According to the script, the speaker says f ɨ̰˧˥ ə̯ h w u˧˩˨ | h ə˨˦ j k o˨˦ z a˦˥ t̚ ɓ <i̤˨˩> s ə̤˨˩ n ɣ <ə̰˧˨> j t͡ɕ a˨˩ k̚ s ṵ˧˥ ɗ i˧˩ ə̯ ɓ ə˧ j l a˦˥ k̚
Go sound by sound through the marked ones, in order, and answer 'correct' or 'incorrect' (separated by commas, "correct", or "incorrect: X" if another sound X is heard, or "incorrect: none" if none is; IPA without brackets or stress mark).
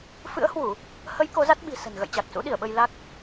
correct, correct